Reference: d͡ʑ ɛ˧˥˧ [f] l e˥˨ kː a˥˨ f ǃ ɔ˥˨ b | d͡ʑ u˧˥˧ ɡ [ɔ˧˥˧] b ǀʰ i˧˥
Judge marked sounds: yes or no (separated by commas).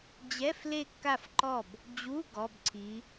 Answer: yes, yes